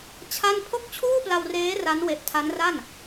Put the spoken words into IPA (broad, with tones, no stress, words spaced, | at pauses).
t͡ɕʰa˥˩n pʰo˥˩k̚t͡ɕʰuː˥˩pla˧wreː˦˥ ra˦˥nwe˨˩ʔtʰa˦˥nra˥˩n